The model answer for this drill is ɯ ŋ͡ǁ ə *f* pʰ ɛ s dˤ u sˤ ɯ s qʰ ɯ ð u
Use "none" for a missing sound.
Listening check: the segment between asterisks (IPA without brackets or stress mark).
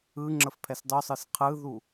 f